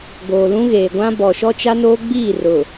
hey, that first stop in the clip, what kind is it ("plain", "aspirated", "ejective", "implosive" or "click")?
plain